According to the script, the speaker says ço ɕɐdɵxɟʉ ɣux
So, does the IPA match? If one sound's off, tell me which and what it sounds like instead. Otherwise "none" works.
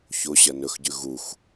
d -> n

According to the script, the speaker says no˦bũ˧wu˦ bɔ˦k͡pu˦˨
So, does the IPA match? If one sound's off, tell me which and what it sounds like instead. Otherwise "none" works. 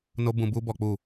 w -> b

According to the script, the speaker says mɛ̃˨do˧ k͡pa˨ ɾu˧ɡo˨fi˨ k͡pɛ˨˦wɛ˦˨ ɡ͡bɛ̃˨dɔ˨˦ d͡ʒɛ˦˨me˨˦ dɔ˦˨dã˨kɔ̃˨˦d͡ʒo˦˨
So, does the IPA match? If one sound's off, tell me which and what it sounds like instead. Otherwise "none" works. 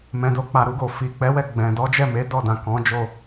none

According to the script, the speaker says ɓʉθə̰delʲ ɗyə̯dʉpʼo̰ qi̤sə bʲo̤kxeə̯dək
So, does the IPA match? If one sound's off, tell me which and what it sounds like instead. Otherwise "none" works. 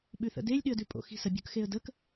q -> x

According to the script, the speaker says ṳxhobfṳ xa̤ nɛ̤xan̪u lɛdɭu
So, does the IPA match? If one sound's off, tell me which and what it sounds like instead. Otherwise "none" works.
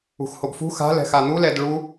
n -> l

